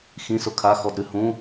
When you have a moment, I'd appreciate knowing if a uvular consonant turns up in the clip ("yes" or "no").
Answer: no